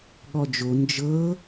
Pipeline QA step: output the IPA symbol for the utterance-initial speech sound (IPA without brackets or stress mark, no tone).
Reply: ɠ